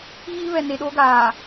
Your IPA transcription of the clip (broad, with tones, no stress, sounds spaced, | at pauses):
ɣ iː˦ β ɛ˨ n e˨ ɗ oː˦ ɡ aː˨